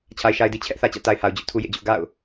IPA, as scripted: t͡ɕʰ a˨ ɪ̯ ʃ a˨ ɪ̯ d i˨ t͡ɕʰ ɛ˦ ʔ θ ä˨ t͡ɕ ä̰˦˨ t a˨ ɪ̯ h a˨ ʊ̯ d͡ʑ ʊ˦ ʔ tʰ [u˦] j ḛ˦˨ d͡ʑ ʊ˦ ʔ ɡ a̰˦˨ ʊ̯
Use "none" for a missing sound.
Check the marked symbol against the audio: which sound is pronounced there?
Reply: u˦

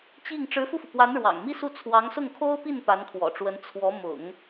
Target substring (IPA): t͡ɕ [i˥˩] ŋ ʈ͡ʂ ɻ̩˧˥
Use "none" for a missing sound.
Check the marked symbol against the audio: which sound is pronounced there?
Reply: i˥˩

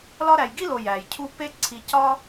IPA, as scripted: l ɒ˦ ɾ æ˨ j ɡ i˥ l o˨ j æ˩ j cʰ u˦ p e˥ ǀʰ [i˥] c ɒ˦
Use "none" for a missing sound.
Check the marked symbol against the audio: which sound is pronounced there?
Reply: i˨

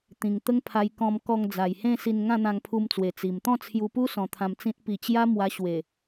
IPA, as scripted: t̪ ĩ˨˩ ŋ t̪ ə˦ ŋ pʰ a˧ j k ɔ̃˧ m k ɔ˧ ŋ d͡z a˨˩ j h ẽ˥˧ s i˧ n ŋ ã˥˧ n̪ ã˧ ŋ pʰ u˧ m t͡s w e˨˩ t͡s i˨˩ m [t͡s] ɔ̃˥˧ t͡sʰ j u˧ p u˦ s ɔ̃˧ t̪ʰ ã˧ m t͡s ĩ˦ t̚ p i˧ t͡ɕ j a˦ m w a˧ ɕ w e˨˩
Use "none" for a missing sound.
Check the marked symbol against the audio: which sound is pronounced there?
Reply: t̪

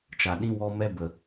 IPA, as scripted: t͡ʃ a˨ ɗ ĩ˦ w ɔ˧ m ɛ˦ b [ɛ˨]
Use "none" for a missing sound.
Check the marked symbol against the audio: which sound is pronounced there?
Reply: ə˨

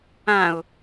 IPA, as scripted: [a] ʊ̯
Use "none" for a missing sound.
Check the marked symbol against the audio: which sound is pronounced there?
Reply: ã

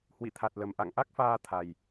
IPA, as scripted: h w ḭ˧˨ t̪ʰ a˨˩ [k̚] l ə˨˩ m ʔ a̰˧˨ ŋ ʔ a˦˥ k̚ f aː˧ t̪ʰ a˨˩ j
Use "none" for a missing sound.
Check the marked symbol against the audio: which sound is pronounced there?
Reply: t̚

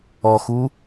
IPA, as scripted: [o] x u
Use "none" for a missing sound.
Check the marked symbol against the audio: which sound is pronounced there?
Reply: ɔ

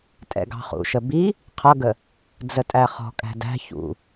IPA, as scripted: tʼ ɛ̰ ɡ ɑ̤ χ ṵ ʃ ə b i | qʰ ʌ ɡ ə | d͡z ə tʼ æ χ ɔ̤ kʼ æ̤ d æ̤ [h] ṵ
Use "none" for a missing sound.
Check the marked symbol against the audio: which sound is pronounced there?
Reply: ç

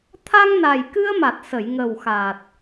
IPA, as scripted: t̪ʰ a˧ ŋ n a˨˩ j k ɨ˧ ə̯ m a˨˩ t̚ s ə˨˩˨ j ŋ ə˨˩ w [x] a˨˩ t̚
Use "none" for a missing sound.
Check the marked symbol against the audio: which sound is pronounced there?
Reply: x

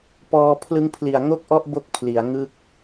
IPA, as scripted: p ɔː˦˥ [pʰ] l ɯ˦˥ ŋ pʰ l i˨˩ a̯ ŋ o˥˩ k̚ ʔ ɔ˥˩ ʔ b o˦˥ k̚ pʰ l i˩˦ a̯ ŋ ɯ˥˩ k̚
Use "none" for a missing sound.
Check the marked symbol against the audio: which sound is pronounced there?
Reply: pʰ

